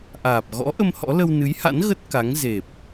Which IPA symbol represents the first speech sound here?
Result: ʔ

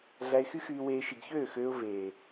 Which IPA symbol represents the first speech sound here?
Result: ɮ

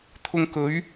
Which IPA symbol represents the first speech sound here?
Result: t̪ʰ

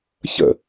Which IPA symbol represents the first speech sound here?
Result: ç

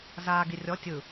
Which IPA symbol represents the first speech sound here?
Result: z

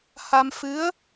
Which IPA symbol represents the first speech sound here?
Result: h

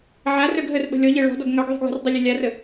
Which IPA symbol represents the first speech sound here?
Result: ʕ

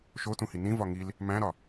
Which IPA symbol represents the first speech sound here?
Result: ʃ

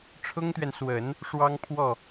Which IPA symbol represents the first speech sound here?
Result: ʈ͡ʂʰ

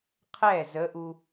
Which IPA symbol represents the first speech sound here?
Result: qʰ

